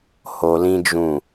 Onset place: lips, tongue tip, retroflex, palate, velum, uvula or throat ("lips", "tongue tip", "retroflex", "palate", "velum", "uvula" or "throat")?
throat